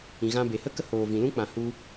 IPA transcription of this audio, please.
ĩ˨ ɣ ã˧ b e˨ h ə˦ k ə˦ h oː˨ v ĩ˨ l ũ˦ k͡p ã˨ h u˧

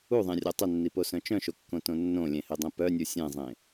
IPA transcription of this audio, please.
u ðˤ ẽ rʲ ɔ tˤ ɘ nː i p o s œ̃ t͡ʃ œ̃ ʃ o kː õ t õ nː õ lʲ ẽ h e dˤ ẽ p œ nʲ u sʲ ẽ zˤ ẽ

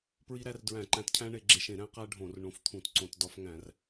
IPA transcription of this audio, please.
p ɹ i˦ ɾ æ˦ r d ɹ æ̃˧˩˧ ǃ æ̃˧˩˧ t cʰ æ̃˦ ɳ e˧˩˧ ɡ͡ǁ e˧˩˧ ʃ ẽ˧˩˧ ɾ æ̃˦ q æ˦ ɖʱ õ˧˩˧ r ɳ õ˧˩˧ f t̪ʰ ũ˧˩˧ t ǀ õ˧˩˧ t d ɒ˦ f ŋ æ̃˧˩˧ r

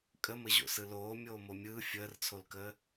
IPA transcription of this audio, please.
kʼ ə m ə ʑ o̰ s ɯ l oː mʲ oː m o mʲ ɯː fʲ əː r t͡sʰ o l k əː

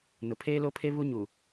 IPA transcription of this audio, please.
n ʊ˨ pʰ eː˦ l o˦ pʰ e˦ β u˦ ɲ u˨

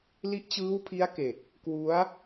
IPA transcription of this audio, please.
l i˦˥ ʔ t͡ɕ ɯː˦˥ w pʰ i˦˥ a̯ k e˨˩ k̚ | k w u˦˥ a̯

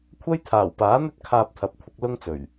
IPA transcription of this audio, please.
kʷʰ ɐ˥ j t̪ʰ aː˨˩ w p aː˨˥ n̪ ɵ˥ t̚ kʰ aː˧ p̚ t̪ʰ ɐ˨˥ p̚ kʷʰ ɪ˧ k̚ l ʊ˥ ŋ t͡s ɵ˨˩ ɥ

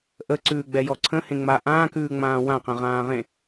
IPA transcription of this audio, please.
ʔ ə ǀ ʉː ɡ͡b ɛ j ɔ ǀʰ ə̃ h ẽ ŋ͡m a ʔ ãː k ʉː ŋ͡m ãː w ã q ə̃ ʁ ãː ʁ ẽ

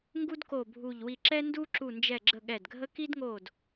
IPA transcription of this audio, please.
ŋ ɡ u˥ d k o˦˨ bʱ u˦˨ ʎ w i˦˨ ǁ ɛ˥ n d u˥ ǁ u˦˨ n d͡ʒ ɛ˦˨ ɡ͡ǁ ə˦˨ ɠ ɛ˦˨ d ɡʱ ə˥ k i˥ d ŋ oː˦˨ d

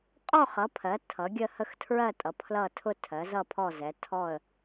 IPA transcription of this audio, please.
qʼ ɔ˥˨ χ ʌ˩˥ pʰ ɜ˩˥ tʰ ʌ˩˥ ɡʲ ə˥˨ h ə˥˨ x tʰ ɹ ɜ˥˨ tʼ ʌ˩˥ pʰ l ʌ˥˨ tʰ ʊ˥˨ tʰ ɜ˩˥ z ʌ˥˨ pʰ ɔ˥˨ z ɛ˩˥ tʰ ɔ˥˨ ə̯

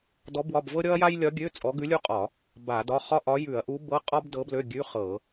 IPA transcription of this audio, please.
d ɔ˧˥ b w ɒ˧˥˧ b v ɤ˥ ɾʲ ɔ˥ ɐ̯ j a˥ j lʲ ɒ˧˥ ɡʲ ø˧˥˧ t͡sʼ ɔ˧˥ ɡ ʉ˧˥ lʲ u˥ qʼ ɒ˧˩˧ | b a˧˩˧ d ɒ˧˥˧ χ ɒ˥ ʔ ɒ˧˥ j ʉ˧˩˧ ɐ̯ ʔ u˧˥ b ɤ˧˥˧ qʼ ɒ˥ b d ɤ˧˥ b l ø˧˥˧ ɡʲ ʉ˧˥˧ χ ɤ˧˩˧

